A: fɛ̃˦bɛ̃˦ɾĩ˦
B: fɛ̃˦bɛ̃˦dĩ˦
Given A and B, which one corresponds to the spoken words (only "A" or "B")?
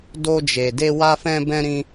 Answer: A